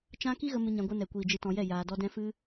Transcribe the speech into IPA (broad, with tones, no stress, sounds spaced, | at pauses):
t͡ʃ ã˦ k i˦ ɣ ə˧ m ɨ˧ ɲ ã˧ ɡʷ ɨ˧ n ɛ˨ kʷ iː˨ d͡ʒ ɨ˧ t ɔ̃˧ j ɛ˦˨ j aː˧ d ɔ˦ d ɛ̃˧ f ɨ˦